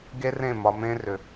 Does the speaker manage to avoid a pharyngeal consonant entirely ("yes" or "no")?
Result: yes